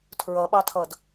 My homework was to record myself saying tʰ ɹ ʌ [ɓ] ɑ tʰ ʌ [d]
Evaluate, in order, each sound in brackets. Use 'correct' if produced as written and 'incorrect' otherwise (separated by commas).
correct, correct